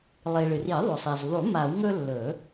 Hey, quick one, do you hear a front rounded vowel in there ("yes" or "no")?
no